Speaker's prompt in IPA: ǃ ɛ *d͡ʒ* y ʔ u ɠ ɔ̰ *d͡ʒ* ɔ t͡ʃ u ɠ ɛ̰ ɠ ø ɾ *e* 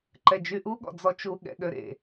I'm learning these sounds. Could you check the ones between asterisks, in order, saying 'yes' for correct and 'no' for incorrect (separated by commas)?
yes, no, no